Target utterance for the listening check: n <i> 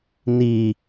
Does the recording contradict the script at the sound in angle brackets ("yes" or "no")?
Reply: no